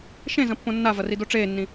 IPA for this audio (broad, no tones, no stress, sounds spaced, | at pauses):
ʃ ẽ z ɐ̃ pː õ nː a v ɐ r i d o ʈ͡ʂ eː nː ĩ